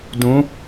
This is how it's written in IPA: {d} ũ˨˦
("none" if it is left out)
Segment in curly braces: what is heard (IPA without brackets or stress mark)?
d